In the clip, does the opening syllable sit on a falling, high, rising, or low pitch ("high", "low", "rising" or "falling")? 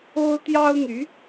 high